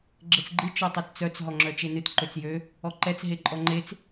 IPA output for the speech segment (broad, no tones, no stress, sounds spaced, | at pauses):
ɡ͡ǁ ɘ t͡s ɡ͡ǃ ɨ t͡ʃ ɔ tˤ ɛ t t͡s œ t͡s ɦ ɔ ŋ͡ǁ œ t͡ʃ e n ɨ t ǃ ø t͡s j ø | ɔ ǃ ɛ t͡s ɦ e ǃʼ ɔ ŋ͡ǃ e t͡s